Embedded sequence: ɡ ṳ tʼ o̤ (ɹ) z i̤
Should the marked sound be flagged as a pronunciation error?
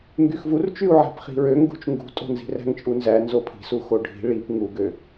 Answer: yes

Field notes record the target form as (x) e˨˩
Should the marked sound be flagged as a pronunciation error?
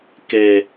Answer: yes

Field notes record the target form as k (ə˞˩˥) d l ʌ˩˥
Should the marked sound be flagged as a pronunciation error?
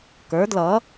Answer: no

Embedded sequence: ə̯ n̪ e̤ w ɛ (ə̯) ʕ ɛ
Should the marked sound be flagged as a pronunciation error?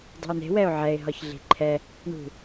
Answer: yes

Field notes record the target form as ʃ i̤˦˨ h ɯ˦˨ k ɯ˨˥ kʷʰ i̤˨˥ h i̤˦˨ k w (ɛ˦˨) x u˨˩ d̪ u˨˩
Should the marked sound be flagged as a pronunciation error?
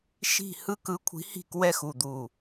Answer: no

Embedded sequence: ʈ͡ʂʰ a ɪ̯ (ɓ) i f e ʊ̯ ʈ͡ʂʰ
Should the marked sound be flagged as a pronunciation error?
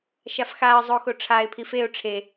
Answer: yes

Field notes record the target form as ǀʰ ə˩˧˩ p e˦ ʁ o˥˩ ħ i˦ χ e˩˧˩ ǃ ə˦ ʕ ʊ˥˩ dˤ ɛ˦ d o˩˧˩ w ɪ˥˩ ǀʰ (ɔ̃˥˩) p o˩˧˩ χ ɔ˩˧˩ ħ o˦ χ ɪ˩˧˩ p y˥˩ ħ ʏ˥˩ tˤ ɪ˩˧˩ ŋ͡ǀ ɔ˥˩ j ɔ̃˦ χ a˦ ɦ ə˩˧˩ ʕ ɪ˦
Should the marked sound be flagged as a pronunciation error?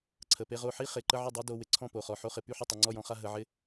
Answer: no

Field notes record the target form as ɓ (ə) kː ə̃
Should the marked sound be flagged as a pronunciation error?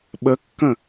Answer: no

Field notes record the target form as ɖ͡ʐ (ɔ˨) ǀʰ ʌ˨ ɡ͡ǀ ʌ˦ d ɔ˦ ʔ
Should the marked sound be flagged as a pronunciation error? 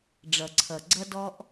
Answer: yes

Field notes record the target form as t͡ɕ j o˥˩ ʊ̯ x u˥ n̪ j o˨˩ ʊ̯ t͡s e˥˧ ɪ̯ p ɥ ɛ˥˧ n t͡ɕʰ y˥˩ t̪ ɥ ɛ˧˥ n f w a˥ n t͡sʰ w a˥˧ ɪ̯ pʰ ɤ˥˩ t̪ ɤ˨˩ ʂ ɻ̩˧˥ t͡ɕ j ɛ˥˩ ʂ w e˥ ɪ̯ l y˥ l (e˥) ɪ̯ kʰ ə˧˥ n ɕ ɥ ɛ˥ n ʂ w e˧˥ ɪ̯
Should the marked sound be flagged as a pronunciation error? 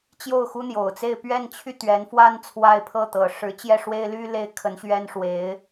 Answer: no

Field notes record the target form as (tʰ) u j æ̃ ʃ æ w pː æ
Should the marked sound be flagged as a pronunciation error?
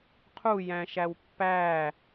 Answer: yes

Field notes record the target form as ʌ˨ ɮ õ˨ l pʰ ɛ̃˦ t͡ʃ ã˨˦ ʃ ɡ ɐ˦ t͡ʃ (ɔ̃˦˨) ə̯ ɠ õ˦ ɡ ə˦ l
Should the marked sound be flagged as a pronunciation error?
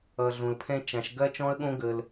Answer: yes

